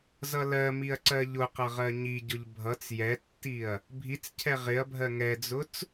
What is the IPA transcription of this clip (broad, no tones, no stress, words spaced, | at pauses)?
zʌlɜmiɐ̯ ǀɜʎʊqʌ ʁɜɲiɟʊʎ bʱʌt͡s jɛtːiɐ̯ | bʱit͡scʰɛ ʁɪɐ̯bʱɜ ŋɛd͡zʊt͡s